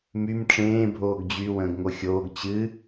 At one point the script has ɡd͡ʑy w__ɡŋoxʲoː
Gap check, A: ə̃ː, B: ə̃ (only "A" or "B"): A